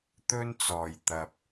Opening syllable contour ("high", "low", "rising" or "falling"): high